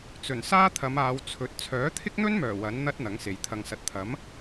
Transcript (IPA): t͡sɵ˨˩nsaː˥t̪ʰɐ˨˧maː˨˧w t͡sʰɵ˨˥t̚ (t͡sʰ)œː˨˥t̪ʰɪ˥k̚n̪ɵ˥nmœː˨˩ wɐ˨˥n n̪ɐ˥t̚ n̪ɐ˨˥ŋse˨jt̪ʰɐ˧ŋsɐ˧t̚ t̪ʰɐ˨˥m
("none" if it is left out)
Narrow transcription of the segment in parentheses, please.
t͡sʰ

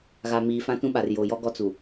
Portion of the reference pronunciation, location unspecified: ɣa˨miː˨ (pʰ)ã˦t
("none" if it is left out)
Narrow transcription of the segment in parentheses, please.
f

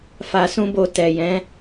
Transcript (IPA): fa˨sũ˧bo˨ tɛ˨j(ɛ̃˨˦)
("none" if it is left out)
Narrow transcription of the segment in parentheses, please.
ɛ̃˨˦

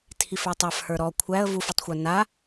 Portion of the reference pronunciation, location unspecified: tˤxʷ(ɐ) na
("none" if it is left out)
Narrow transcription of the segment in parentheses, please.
ə˞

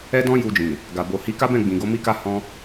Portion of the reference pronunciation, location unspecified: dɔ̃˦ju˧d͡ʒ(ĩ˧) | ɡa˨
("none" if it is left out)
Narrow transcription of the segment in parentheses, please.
ĩ˨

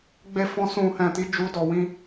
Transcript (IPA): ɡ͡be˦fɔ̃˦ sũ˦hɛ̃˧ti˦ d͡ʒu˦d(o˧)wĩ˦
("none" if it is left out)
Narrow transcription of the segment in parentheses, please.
ɔ˧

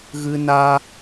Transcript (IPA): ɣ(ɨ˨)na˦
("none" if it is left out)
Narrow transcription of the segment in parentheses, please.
ɨ˦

